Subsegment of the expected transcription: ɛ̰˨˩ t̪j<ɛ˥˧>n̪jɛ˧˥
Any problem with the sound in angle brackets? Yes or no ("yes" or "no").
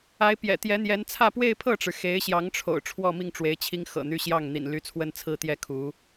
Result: yes